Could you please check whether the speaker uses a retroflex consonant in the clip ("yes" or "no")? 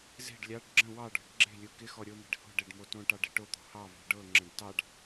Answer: yes